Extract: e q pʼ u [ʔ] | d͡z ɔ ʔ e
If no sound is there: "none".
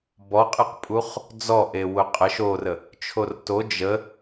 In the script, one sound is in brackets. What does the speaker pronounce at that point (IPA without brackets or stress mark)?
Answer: χ